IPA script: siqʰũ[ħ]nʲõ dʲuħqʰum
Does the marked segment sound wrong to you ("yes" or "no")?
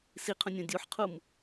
yes